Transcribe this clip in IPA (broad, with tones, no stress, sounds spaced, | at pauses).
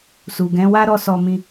s u˨ ɡ ɛ̃˨˦ w a˦ ɾ ɔ˦˨ s ɔ˧ m ĩ˧